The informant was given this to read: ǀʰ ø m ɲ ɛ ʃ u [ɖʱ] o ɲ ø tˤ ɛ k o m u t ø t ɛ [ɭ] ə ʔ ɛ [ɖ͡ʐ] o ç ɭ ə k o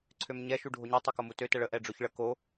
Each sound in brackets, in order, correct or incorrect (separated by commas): correct, correct, correct